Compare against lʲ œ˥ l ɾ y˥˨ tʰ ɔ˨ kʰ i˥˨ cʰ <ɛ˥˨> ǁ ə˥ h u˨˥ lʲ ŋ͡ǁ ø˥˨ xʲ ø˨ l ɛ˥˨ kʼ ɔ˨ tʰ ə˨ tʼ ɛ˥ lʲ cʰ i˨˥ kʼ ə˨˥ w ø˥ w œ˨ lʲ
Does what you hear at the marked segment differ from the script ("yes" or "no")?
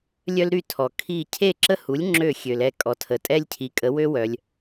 yes